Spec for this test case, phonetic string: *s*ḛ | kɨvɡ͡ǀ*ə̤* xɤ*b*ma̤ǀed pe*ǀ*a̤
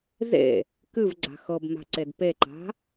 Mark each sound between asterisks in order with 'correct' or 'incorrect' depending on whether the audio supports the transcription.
incorrect, incorrect, correct, incorrect

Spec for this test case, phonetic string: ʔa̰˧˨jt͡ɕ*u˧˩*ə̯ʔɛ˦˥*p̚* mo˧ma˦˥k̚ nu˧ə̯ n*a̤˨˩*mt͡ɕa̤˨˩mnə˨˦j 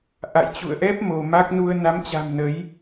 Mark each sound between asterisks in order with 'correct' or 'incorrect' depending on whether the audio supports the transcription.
incorrect, correct, incorrect

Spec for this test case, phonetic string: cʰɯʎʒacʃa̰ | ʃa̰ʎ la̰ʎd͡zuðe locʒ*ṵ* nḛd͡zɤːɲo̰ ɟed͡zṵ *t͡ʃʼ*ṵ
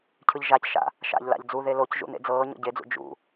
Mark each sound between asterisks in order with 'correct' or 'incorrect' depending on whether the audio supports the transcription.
correct, incorrect

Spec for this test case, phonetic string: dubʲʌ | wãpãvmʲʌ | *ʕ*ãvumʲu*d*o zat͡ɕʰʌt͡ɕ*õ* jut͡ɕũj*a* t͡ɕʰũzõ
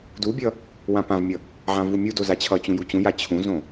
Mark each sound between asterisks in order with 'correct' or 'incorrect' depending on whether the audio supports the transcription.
correct, correct, incorrect, correct

